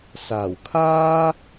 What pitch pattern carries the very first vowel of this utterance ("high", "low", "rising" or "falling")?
low